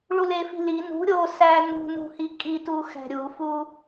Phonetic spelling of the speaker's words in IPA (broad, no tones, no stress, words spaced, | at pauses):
ɭulefi̤li nṳ ɾʲo sænṳnṳhi kʼituxæ̤ ɾʲufu